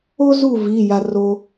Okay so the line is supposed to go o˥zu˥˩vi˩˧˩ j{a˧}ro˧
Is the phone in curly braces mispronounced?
no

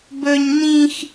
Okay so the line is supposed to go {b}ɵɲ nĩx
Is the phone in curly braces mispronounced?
no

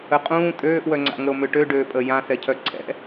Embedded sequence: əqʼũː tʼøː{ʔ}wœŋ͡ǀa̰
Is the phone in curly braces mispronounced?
no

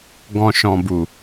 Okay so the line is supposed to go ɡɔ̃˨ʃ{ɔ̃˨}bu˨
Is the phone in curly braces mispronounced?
no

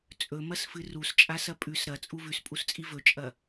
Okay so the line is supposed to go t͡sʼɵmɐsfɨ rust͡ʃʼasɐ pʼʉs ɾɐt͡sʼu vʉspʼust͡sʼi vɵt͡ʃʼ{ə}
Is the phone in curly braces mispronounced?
yes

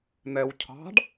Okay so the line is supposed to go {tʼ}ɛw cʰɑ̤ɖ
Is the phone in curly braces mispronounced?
yes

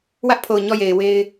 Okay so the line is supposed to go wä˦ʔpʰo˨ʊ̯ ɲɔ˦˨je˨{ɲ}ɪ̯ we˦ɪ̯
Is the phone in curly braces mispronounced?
yes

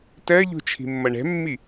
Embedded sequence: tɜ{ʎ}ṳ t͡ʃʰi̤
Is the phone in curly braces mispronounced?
no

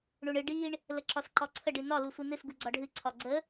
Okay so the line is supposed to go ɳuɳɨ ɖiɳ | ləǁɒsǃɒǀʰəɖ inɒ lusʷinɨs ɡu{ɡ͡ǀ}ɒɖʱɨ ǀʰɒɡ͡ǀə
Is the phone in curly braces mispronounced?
no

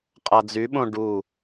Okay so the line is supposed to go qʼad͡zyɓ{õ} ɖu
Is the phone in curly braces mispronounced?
no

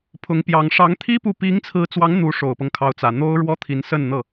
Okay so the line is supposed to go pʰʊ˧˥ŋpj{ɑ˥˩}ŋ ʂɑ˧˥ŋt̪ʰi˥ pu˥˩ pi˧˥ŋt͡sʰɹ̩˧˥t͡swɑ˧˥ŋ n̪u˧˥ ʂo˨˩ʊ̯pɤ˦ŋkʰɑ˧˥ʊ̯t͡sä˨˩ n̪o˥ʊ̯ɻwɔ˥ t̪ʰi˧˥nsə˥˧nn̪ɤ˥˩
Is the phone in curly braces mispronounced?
yes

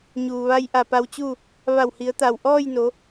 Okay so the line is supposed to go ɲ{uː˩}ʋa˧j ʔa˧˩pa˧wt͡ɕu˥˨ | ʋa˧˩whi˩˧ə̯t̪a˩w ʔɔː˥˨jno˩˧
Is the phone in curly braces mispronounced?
no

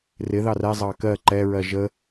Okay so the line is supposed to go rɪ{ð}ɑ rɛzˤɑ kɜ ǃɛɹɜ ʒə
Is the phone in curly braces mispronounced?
no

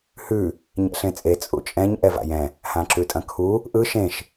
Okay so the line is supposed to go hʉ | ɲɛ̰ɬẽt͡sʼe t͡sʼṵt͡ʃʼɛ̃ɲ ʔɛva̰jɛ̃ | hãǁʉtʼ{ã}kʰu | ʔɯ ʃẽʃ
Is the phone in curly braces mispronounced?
yes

